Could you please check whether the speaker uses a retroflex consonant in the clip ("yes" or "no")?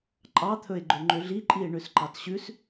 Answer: yes